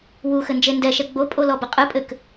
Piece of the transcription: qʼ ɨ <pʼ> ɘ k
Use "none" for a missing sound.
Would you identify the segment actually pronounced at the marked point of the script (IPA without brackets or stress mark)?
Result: pʼ